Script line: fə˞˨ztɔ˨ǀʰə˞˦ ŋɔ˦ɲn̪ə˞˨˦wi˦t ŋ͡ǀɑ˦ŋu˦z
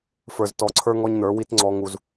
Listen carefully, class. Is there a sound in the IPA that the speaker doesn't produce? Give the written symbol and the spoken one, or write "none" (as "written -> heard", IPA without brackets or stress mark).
ɑ˦ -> ɔ˦